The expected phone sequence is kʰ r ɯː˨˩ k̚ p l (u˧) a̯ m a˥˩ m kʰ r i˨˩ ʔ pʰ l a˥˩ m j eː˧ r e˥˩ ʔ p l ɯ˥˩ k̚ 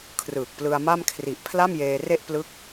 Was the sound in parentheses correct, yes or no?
no